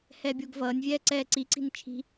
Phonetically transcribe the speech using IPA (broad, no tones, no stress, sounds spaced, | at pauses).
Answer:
h ɛː bʲ o ɡ v ʌː nʲ vʲ ɛː ǀ ɛː ǀ i ǀ i̤ n t͡ʃʰ i̤